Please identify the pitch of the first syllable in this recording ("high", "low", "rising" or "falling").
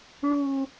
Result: high